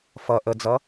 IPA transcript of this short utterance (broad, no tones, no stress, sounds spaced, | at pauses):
f ʌ ʔ ə d͡z ʌ